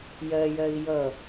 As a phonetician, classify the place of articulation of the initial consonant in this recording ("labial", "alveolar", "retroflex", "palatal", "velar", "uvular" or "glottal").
palatal